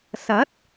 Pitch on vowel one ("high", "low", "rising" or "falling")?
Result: rising